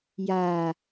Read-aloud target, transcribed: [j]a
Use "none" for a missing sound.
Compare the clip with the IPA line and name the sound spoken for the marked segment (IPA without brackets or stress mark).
j